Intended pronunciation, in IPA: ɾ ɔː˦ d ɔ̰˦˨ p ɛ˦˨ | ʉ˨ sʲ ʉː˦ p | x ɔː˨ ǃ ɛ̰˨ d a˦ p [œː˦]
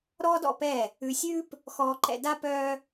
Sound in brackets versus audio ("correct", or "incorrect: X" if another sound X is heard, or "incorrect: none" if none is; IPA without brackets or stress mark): correct